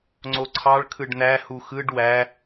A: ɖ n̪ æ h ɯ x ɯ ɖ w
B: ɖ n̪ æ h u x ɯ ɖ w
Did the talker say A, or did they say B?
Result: B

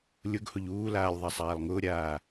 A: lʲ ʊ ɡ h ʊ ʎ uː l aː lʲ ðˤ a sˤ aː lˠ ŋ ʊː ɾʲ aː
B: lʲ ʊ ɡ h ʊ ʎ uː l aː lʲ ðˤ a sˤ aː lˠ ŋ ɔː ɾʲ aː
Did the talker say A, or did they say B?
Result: A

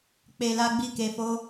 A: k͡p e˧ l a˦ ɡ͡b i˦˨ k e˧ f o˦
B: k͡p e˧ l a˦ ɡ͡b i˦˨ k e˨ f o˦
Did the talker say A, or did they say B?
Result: A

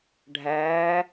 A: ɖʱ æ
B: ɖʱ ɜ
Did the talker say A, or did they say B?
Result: A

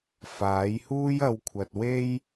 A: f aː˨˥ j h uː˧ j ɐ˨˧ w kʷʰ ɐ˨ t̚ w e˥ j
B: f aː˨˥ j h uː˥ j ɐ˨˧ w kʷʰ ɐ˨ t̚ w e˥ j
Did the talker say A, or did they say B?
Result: B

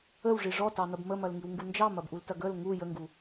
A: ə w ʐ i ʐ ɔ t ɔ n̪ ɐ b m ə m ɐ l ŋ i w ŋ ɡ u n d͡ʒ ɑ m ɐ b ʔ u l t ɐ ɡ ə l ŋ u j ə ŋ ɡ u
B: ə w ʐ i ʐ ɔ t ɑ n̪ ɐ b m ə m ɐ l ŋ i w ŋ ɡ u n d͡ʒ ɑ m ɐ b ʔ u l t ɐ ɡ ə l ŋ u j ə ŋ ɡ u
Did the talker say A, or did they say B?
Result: B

